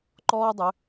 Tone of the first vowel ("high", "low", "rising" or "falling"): high